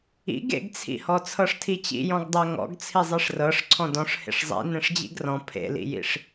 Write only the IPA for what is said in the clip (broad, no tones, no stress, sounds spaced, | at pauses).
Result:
ḭ ɡ ḛ ɡ t͡sʰ ḭ h ɔ t͡sʰ ɤ ʂ tʰ i t͡ɕ ḭ j ɔ̃ ɡ dˤ ɜ ŋ ɔ̰ ɡ t͡sʰ i zˤ i ʂ r ɤ ʂ ǀʰ ɔ̃ d ɔ̃ ʂ h ḛ ʂ zˤ ḭ n ẽ ʂ d͡ʑ ḭ ɡ r ɔ̃ pʰ ḛ l ḭ j ḭ ʂ